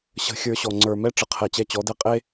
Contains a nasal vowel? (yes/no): no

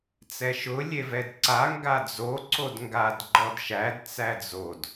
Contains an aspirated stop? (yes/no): no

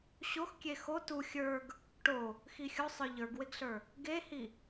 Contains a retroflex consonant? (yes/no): yes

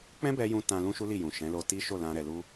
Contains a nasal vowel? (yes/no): yes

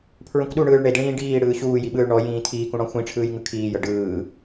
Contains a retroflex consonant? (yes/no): yes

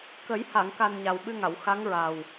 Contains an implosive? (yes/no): yes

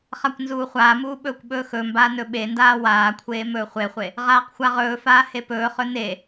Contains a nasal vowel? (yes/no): no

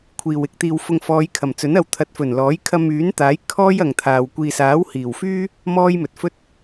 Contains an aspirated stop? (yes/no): yes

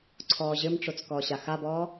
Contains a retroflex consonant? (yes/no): yes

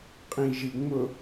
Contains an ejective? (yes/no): yes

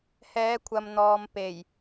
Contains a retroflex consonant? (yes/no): no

